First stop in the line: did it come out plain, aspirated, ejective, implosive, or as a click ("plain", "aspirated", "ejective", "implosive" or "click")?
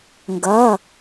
plain